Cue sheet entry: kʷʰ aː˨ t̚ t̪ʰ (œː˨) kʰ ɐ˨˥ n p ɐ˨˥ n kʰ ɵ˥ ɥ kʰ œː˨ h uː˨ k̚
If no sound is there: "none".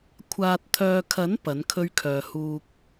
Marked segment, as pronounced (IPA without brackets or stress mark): œː˨